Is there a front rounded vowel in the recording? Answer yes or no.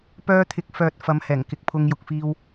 yes